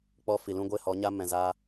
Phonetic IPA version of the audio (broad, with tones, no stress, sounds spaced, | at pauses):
k͡p ɔ˧ f i˨ l ũ˦ ɡʷ e˦ h ɔ˨˦ ɲ a˦ m ɛ̃˨ z a˧